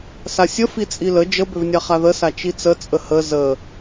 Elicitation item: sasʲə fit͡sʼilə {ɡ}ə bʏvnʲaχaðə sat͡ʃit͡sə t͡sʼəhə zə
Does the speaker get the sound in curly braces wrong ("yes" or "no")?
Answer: yes